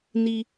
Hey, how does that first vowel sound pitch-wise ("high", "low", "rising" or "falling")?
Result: low